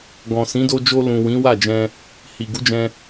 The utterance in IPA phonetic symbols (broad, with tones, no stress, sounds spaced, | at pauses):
ɡ ɔ̃˨ s ĩ˨˦ d o˧ d͡ʒ o˧ l ũ˨ w ĩ˨˦ w a˦˨ d͡ʒ ɛ̃˧ | h i˨ ɡ u˨˦ d͡ʒ ɛ̃˧